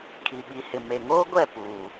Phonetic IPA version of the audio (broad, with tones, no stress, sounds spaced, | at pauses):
kʰ i˨ ɓ i˨ h ɪ˨ m e˨ ŋ oː˦ ɡʷ ɛ˦˨ p uː˨